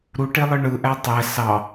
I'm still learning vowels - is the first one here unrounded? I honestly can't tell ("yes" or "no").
no